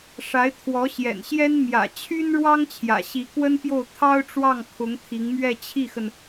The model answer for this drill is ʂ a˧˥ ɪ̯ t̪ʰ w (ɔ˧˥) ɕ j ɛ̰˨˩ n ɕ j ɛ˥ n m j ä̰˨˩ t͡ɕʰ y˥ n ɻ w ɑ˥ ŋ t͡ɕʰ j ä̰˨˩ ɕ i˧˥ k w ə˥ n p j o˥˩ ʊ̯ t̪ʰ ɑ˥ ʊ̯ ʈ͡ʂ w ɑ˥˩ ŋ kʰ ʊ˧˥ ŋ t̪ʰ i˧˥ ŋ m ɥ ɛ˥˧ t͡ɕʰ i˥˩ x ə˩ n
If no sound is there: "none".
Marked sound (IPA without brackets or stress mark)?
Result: ɔ˧˥